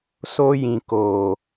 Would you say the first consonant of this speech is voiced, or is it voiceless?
voiceless